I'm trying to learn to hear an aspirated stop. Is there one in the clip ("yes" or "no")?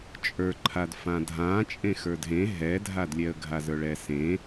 yes